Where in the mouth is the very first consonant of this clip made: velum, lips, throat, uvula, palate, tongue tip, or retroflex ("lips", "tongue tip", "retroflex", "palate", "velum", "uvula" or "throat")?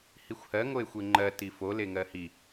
throat